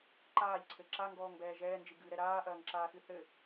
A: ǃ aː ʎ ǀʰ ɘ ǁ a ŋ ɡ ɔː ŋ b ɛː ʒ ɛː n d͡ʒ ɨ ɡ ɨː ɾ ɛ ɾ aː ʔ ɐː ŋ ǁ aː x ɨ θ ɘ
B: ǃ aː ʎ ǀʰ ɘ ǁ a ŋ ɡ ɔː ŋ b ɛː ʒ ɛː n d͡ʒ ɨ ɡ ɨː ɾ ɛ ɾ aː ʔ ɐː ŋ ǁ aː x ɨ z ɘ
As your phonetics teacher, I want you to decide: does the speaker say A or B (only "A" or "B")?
A